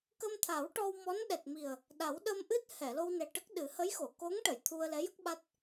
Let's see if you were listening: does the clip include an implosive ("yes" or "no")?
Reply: yes